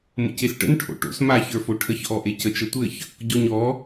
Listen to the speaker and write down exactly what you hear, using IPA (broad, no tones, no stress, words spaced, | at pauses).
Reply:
mə̰cesʈə̰n ʈʰo̰ʈo̰s maç ə˞foʈʰəç ʔɔʔecət͡ʃ ətʷɘç | ɟɔɲɔ